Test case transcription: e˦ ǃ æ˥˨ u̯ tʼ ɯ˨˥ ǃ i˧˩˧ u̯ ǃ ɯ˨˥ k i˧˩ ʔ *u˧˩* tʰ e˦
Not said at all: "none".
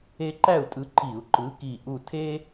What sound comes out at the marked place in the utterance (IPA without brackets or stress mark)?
u˧˩